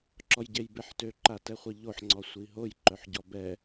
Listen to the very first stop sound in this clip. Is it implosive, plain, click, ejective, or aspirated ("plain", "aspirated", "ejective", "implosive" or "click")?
click